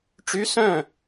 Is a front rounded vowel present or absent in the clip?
present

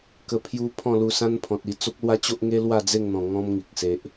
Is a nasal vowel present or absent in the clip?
present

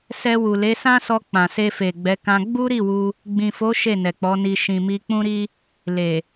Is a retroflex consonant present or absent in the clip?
absent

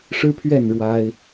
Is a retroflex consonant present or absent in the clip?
present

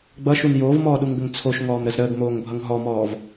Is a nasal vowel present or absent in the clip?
absent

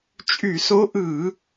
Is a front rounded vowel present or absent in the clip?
present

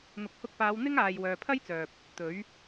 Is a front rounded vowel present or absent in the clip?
present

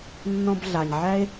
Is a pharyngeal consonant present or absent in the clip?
present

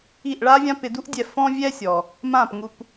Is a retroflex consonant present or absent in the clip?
present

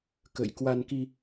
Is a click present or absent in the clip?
absent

